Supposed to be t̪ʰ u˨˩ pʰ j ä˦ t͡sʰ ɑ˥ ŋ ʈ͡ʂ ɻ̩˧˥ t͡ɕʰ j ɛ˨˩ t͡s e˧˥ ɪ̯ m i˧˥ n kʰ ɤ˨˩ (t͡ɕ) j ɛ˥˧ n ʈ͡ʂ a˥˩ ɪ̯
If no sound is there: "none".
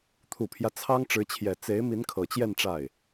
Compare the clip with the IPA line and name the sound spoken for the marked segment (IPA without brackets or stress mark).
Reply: t͡ɕ